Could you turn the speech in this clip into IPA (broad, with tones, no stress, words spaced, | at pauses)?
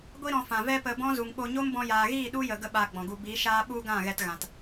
ɡʷi˧ɾɔ̃˨ fã˨vɛ˦ pə˨ bɔ̃˦zu˨ŋɓo˧ ɲo˦mbɔ̃˧jaː˨ɣiː˦˨ ɗu˦jə˨ ɡə˦ɓaː˧ɡ͡bɔ̃˨ɡu˧ bi˨˦ʃaː˦ ɓu˧ ɡã˦˨ɣɛ˧tɣã˨t